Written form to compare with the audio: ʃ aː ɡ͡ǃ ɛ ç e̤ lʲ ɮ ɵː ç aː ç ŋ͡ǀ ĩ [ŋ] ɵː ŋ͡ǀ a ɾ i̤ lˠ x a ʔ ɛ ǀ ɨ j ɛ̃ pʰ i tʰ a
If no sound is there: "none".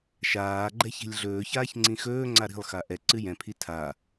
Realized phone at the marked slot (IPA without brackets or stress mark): x